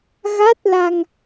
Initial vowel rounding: unrounded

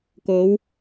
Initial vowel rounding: rounded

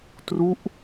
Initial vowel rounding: rounded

